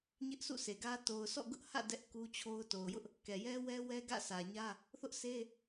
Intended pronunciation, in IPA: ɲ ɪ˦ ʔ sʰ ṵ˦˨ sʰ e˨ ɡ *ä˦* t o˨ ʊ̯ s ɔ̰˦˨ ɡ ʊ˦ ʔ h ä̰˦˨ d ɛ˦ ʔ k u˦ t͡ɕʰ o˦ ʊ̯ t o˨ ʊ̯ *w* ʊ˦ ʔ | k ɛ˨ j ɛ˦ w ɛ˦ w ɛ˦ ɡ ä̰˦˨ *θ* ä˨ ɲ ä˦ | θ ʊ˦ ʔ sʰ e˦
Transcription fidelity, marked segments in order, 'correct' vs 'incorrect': correct, incorrect: j, incorrect: s

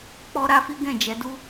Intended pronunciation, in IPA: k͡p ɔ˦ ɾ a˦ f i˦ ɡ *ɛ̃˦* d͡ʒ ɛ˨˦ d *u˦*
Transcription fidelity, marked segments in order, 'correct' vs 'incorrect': incorrect: ɛ̃˦˨, correct

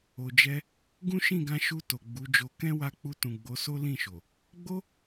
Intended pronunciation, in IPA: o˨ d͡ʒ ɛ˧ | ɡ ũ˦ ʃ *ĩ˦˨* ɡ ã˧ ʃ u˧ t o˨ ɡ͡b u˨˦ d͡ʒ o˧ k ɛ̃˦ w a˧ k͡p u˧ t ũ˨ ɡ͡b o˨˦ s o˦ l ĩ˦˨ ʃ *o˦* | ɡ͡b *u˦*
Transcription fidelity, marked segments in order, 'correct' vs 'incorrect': correct, incorrect: o˨, incorrect: o˦

